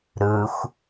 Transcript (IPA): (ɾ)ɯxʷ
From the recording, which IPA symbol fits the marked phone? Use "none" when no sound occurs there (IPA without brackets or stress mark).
ɾ